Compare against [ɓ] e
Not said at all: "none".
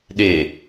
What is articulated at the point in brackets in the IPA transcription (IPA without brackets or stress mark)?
ɗ